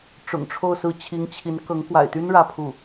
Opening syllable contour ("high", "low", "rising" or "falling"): low